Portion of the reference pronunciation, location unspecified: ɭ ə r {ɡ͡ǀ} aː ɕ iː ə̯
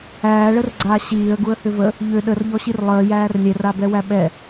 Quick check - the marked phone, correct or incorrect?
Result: correct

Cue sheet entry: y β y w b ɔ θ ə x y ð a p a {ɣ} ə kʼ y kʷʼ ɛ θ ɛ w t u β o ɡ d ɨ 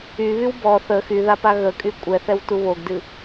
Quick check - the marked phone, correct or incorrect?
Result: correct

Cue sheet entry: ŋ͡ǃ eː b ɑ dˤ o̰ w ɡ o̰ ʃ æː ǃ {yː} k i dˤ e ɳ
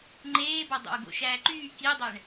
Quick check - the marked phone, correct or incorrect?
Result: correct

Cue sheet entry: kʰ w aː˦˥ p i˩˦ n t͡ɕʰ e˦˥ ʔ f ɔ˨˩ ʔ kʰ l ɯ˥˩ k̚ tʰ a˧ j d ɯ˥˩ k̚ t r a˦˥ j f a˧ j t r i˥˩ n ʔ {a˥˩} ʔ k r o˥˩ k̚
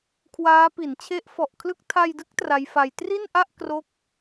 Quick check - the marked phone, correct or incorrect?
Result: correct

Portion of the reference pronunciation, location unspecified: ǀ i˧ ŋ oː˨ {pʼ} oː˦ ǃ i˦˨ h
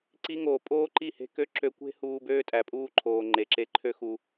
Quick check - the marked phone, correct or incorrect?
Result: correct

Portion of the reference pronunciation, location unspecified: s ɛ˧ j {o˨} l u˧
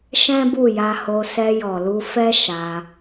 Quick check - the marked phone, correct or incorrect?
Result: incorrect: ɔ˨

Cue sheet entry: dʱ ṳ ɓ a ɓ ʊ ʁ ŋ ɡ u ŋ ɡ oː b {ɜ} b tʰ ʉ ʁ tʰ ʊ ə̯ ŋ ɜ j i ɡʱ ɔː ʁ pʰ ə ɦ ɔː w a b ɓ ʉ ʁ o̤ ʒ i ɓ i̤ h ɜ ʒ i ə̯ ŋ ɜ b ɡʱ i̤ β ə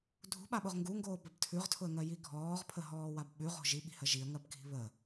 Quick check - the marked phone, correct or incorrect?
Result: correct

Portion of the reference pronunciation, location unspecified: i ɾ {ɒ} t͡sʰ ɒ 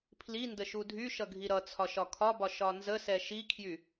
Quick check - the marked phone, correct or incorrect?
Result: incorrect: ʌ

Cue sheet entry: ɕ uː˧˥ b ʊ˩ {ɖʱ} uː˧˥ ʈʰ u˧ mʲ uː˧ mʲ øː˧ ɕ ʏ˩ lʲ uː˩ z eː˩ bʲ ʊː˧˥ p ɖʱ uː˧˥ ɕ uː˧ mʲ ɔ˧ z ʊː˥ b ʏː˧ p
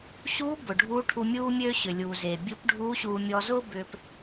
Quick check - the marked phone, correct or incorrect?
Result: correct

